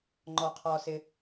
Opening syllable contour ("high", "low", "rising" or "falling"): high